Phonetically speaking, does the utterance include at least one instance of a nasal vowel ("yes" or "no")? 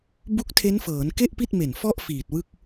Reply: no